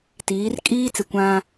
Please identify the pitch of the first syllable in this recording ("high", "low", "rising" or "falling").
rising